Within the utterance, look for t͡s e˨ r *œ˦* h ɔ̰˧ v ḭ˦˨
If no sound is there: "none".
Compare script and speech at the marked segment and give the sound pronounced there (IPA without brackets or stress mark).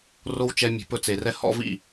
ɛ˦